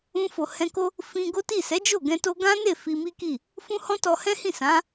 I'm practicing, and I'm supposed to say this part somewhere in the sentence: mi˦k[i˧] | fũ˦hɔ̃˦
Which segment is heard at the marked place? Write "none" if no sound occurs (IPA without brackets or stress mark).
i˦˨